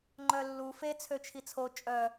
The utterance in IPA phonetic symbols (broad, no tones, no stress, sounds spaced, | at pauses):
ŋ͡ǃ œ lː u f e t͡sʰ ø t͡ʃʰ i t͡sʰ o t͡ʃʼ œ